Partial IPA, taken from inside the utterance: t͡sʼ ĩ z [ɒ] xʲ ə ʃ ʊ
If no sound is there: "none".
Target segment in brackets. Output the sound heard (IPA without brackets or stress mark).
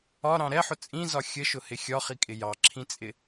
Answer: ɒ